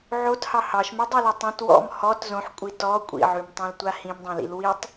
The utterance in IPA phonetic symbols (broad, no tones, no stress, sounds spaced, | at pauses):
ʕ o t h ɑ h ɑ ʃ m y dˤ o l ɔ tˤ õ t w ɔ̰ m h ɔ t z õ ħ kʷʼ i t ɔ kʷʼ ḭ ʕ ʉ m tˤ õ l tʷ a h ĩ m dˤ ɑ̃ l ḭ l w i tˤ